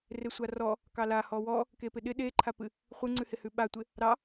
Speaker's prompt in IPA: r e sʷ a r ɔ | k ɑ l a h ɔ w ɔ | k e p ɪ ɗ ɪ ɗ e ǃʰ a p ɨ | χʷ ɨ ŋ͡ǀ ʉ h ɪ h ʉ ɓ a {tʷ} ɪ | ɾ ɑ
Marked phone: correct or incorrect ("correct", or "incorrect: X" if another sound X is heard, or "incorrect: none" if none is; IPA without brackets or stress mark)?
correct